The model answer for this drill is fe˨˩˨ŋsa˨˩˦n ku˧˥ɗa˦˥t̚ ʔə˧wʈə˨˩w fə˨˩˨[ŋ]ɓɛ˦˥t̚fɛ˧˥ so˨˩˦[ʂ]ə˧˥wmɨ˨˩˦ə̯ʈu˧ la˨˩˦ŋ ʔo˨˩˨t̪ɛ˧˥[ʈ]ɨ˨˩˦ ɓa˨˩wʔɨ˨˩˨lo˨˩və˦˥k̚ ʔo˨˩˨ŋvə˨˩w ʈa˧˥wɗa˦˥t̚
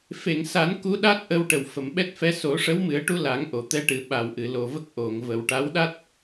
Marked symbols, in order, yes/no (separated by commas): no, yes, yes